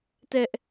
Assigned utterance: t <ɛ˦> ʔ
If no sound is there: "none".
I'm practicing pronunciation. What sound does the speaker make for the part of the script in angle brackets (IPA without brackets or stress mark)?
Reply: ɛ˦